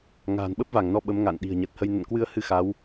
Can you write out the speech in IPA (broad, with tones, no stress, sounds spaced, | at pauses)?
ŋ a̤ː˨˩ n ɓ ə˦˥ p̚ v a˧˩ ŋ n ɔ˨˦ ɓ ə˨˦ m ŋ a̰˧˨ n ɗ i̤˨˩ ə̯ ɲ ə˨˩ t̚ h ə˧ j n ə̰˧˨ n k w ɨ˧ ə̯ h ɨ˧ x a˨˦ w